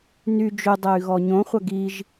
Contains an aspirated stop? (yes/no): no